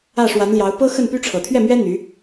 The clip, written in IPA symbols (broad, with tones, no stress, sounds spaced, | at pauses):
ä˥˩ ʂ w a˧˥ n l j ɑ˧˥ ʊ̯ p ɤ˥ x ə˥˩ n p y˥ ʈ͡ʂʰ ɤ˨˩ t̪ʰ ɥ ɛ˥˩ m ɥ ɛ˥ n̪ y˧˥